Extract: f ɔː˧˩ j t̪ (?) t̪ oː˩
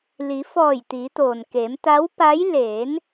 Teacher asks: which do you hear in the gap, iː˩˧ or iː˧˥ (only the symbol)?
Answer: iː˩˧